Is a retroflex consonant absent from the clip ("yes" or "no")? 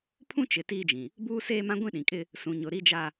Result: yes